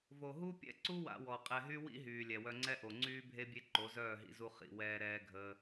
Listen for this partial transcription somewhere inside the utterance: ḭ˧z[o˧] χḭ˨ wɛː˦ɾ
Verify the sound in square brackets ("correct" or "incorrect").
incorrect